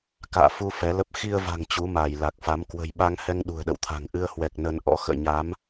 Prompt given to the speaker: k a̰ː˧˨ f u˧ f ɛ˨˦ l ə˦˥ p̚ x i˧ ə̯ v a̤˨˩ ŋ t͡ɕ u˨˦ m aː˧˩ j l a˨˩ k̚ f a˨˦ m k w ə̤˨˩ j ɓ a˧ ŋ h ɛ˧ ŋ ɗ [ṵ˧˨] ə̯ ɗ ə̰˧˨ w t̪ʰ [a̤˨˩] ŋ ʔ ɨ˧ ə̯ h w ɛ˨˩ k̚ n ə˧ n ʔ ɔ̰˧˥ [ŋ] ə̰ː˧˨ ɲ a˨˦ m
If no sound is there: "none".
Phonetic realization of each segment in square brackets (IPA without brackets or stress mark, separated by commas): ṳ˨˩, a̤˨˩, x